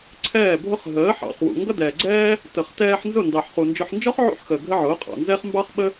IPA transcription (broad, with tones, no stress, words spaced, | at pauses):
ǀʰɛː˦˨bʱʊ˦χ ɦəː˨˦ħɑ̰˨χwṵ˨ ŋɡʌ˦dɛː˨ɡ͡ǀɛː˦ | tə˨χtɛː˧ħ nzʊ˦˨ndɑ˨ħ χu˨nd͡ʒʊ˧ħ nd͡ʒɔ˦χʕṵ˧ħ xəː˨ ɡʱə˦ʕʊː˨˦ qʼɑ̰˨nzɛ˦χ mbɑ˦χɓə˦